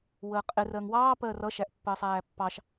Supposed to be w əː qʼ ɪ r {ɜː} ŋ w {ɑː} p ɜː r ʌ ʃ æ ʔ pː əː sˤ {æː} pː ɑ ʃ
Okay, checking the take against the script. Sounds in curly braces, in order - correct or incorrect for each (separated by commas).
incorrect, correct, correct